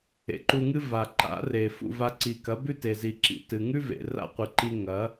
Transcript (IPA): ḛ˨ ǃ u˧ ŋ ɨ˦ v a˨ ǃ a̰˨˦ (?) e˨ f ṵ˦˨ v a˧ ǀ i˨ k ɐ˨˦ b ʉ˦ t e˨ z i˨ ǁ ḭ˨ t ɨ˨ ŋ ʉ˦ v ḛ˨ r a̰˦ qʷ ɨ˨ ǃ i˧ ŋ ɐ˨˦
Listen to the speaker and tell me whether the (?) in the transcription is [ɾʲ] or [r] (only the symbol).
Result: r